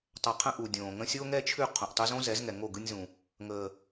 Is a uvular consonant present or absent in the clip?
present